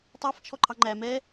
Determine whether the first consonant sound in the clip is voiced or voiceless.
voiceless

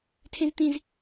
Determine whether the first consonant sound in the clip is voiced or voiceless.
voiceless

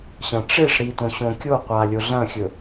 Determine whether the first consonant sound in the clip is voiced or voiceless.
voiceless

